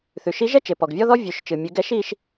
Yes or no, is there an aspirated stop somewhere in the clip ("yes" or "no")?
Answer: no